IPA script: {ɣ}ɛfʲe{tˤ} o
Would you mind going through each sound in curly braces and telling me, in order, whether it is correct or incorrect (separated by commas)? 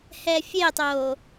incorrect, correct